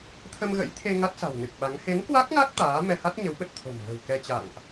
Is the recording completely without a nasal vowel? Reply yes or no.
yes